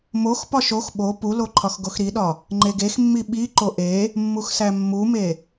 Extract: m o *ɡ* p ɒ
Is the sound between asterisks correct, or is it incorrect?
incorrect